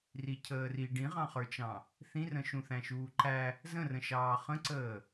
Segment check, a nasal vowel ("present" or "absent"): present